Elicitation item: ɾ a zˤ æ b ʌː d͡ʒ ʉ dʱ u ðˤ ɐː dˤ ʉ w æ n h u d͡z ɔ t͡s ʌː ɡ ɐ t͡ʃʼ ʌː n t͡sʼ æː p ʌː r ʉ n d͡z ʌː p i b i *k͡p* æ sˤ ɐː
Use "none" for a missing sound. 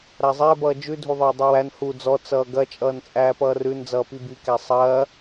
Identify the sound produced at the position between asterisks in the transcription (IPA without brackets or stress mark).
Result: k